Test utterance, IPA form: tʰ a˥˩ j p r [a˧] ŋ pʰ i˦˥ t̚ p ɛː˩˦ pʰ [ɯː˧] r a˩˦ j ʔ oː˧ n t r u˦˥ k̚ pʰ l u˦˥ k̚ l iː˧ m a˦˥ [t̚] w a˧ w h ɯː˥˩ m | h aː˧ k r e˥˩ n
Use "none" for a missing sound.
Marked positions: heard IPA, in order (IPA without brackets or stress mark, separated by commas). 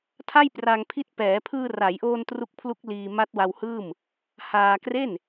a˧, ɯː˧, t̚